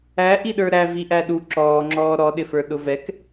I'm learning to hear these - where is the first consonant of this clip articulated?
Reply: throat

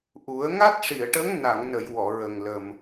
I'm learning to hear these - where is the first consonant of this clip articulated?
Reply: throat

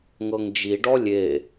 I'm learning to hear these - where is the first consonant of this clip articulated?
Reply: velum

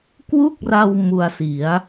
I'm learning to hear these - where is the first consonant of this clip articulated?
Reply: velum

